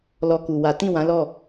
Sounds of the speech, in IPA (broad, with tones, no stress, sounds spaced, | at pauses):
l ɔ˧ k u˨ w a˨˦ t ĩ˦˨ w ã˨˦ l ɔ˦˨